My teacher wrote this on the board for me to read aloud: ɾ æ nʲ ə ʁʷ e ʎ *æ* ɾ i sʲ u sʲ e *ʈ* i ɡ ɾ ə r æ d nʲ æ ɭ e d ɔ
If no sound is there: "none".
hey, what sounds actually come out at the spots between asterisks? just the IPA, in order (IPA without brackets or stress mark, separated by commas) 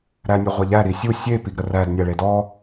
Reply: æ, p